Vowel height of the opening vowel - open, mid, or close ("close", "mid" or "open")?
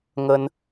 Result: mid